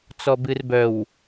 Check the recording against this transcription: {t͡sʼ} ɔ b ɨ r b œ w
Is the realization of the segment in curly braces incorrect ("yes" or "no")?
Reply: yes